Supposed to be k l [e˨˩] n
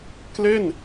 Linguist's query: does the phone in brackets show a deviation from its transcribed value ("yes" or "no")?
yes